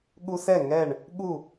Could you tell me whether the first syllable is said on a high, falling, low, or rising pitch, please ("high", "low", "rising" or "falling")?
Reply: high